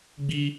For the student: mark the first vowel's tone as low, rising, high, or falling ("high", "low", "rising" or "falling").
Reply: high